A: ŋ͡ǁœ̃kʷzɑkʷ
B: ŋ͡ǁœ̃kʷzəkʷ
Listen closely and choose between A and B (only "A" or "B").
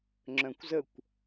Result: B